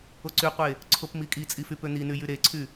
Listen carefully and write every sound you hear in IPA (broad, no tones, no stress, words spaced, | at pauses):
oǀyqʷe | ǀʰopmikʼit͡sʼi fypøn̪iny jyɾeǀʰy